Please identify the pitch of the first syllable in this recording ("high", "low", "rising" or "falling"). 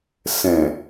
low